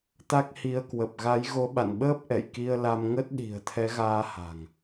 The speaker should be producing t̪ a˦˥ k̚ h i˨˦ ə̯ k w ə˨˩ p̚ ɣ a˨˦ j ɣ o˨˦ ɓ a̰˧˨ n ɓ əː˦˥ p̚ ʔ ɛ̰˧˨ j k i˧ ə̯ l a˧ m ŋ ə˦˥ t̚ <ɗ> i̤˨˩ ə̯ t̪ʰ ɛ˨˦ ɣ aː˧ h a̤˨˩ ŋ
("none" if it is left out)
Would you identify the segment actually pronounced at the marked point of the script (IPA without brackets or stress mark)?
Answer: ɗ